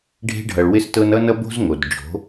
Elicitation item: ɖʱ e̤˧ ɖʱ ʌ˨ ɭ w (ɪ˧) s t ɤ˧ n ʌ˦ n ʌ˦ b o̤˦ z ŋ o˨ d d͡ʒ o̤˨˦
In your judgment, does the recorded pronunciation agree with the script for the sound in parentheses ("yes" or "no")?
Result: yes